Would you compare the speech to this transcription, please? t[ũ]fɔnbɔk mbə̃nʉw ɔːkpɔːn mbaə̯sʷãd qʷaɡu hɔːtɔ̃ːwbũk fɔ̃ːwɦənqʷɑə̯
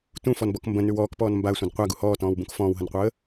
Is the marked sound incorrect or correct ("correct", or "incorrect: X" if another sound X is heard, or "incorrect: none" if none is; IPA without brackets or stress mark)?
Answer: correct